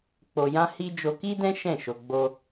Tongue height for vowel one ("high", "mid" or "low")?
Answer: mid